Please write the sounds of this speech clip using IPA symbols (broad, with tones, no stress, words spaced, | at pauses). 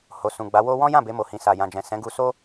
ho˨sũ˨ɡ͡ba˨˦wo˦ wɔ̃˦jã˦˨ be˧mo˨hĩ˨ sa˨jã˨d͡ʒɛ̃˨ sɛ̃˨˦ɡu˧so˦